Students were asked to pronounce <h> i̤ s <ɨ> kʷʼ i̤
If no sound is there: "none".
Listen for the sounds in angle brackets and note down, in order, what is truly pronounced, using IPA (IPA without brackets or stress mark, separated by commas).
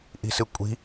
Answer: ʔ, ɨ